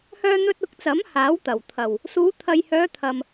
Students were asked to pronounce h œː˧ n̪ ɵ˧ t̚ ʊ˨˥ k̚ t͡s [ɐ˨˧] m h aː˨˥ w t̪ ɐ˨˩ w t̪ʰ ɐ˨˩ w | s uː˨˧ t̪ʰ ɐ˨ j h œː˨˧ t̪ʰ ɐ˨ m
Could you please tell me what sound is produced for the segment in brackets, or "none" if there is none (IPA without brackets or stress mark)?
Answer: ɐ˨˥